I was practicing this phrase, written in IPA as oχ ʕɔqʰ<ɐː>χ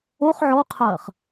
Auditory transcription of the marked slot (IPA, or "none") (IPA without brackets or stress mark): ɐː